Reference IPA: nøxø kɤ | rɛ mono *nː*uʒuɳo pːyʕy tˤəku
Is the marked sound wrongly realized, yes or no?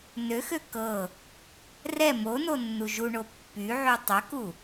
no